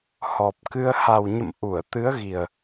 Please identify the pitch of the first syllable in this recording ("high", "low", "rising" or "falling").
low